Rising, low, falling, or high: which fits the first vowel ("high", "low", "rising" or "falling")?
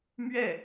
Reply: falling